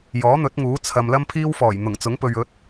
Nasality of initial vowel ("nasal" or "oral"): oral